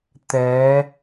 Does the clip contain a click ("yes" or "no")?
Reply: no